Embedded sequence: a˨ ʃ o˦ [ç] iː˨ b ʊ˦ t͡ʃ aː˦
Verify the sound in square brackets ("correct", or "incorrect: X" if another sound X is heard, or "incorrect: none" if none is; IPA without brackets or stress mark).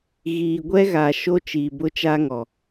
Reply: incorrect: t͡ʃ